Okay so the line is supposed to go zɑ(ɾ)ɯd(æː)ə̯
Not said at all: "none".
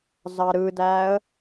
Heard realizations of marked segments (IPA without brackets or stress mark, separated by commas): ɾ, æː